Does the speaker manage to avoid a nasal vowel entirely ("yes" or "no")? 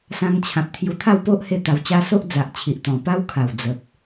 no